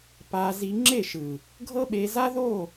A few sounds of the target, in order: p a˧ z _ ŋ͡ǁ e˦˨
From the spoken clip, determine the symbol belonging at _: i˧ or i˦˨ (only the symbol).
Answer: i˧